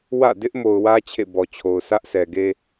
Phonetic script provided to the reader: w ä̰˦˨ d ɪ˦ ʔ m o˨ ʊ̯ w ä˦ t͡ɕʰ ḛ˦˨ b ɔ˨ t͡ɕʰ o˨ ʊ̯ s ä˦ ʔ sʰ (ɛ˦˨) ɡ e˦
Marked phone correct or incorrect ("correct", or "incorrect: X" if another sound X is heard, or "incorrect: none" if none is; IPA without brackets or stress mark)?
incorrect: ɛ˨